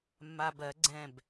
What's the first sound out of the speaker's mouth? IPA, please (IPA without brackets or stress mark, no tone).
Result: mː